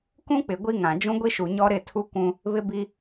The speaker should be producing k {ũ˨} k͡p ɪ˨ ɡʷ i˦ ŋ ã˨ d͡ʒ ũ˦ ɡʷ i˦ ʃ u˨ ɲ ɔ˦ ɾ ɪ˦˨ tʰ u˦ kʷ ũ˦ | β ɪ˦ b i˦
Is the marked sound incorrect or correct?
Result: incorrect